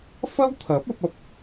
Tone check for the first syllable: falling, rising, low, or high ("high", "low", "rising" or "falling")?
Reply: high